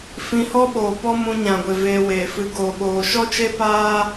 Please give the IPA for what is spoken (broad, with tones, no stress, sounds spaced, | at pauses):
f ĩ˧ h ɔ˦ ɓ oː˨ p ɔ˦ m ũ˧ ɲ ã˨ ɡʷ e˨ v eː˧ w eː˨ f ɨ˧ ɡ oː˨ ɓ oː˨ ʃ ɔ˦ t͡ʃ e˦ p aː˦